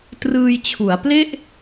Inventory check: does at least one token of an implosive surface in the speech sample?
no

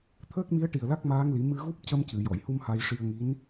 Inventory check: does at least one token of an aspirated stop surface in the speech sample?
yes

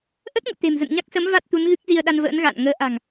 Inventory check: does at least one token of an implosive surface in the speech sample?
yes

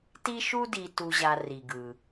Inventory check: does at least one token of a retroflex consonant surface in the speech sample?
no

